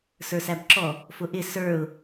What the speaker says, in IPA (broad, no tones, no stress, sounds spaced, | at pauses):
s ə˞ s æ b ǁ ɔ | f ʊ ʔ ɪ s ə˞ ʊ̯